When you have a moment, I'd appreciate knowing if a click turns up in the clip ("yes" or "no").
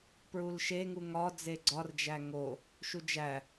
yes